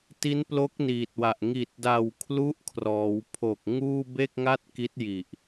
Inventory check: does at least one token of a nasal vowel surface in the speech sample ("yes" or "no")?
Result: no